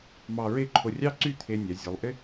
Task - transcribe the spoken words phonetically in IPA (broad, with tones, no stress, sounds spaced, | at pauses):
m ɑ˧ ɹ e˥˧ ǃʰ o˧ rʲ ɑ˥ ǀ y˥˧ t̪ʰ e˧ nʲ a˩˧ zʲ o˩˧ lˠ ʔ ɪ˥